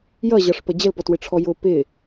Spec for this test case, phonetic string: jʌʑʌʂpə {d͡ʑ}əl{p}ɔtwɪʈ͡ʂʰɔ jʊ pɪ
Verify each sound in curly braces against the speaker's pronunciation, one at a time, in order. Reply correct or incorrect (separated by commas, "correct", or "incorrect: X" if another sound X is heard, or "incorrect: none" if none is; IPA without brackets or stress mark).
correct, correct